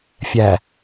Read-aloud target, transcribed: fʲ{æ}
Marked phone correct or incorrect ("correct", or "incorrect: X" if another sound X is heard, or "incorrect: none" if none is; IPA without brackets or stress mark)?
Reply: correct